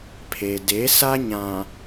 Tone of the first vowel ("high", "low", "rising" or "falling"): low